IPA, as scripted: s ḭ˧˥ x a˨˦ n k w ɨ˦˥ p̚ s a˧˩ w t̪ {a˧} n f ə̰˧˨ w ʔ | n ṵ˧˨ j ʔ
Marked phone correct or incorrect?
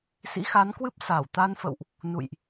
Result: correct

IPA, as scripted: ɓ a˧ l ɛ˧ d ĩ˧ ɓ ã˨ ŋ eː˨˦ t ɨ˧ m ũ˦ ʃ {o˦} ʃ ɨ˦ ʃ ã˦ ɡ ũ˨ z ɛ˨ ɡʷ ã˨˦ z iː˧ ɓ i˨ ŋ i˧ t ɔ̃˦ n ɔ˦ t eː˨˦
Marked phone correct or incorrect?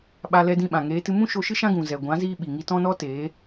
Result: incorrect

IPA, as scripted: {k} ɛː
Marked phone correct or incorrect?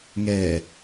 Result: incorrect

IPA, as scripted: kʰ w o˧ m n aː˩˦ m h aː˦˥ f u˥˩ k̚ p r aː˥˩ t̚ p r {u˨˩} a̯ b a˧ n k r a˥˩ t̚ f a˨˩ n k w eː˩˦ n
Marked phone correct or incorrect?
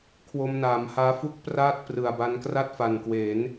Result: incorrect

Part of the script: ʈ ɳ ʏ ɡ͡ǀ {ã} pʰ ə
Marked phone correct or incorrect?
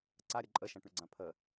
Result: correct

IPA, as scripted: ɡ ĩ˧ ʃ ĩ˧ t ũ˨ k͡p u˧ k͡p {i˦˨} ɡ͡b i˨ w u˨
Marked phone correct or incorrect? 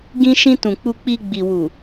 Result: incorrect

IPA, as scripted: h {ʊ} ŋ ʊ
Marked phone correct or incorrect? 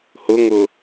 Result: correct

